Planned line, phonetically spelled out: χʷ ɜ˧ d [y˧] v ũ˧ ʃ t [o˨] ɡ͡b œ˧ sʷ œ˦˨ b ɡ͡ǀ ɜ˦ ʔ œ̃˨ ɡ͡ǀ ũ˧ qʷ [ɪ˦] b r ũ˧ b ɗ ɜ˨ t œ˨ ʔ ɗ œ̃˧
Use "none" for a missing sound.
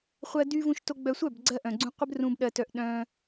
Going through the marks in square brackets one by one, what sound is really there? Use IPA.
y˧, o˧, ɪ˦

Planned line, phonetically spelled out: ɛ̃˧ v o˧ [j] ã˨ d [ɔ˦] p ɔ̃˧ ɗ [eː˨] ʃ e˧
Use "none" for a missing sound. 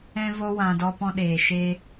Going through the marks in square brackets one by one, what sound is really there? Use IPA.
w, ɔ˧, eː˨

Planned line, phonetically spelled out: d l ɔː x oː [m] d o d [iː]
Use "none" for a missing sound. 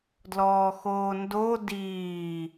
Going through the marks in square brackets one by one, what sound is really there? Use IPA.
n, iː

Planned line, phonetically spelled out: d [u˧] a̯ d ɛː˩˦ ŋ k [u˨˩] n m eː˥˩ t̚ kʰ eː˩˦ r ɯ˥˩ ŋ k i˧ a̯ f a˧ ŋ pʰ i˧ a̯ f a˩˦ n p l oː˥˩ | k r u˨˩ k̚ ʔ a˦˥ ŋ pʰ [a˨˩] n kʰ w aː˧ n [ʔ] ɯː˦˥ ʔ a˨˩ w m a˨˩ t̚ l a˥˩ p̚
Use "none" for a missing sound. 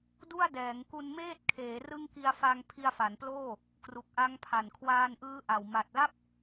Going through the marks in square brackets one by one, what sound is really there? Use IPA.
u˥˩, u˧, a˨˩, ʔ

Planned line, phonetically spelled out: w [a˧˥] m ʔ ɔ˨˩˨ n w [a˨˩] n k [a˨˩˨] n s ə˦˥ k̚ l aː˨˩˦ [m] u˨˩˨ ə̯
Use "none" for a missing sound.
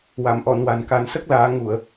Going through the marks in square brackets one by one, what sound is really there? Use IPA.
a˨˩˨, a˨˩, a˨˩˦, ŋ

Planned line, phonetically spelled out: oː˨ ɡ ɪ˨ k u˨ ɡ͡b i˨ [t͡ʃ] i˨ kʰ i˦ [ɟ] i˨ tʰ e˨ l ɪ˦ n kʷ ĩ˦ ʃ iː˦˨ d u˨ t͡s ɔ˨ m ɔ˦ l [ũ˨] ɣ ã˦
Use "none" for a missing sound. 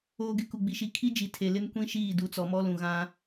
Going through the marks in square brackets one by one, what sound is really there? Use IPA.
ʃ, d͡ʒ, ũ˨

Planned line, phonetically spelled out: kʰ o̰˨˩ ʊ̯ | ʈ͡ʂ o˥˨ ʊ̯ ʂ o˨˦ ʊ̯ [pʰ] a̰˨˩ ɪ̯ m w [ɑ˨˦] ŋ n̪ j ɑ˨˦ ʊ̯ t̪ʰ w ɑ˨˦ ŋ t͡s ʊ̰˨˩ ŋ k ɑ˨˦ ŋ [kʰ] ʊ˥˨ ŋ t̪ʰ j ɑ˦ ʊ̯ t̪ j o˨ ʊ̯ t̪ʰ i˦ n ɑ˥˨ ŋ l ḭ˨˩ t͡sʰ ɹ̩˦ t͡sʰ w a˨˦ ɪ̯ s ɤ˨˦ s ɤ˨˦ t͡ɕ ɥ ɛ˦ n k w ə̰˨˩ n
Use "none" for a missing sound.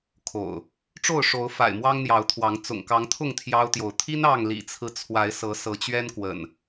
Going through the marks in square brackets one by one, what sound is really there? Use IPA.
f, ɑ˦, t̪ʰ

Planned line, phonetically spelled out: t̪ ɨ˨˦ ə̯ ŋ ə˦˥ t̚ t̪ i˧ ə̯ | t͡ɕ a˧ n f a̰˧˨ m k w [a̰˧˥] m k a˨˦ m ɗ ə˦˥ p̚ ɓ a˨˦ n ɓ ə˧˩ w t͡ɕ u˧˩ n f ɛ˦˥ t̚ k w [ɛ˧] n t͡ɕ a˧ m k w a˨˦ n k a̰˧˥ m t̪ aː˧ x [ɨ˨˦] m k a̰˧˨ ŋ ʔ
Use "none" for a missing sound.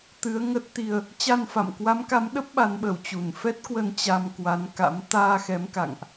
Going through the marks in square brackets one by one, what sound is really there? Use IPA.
a˨˦, ə˧, ɛ˨˦

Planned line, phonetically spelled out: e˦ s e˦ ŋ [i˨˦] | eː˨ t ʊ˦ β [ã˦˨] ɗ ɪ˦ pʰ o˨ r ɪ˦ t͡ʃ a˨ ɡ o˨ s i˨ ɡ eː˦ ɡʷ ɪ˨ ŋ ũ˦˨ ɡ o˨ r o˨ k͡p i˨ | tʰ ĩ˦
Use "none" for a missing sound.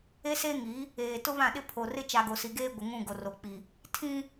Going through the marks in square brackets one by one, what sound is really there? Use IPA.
i˨˦, ã˦˨

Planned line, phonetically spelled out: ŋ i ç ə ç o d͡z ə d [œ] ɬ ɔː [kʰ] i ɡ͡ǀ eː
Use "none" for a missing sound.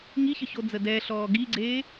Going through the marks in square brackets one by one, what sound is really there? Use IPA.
ɛ, ɡ

